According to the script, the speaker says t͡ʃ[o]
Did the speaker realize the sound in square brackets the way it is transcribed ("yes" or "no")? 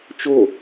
yes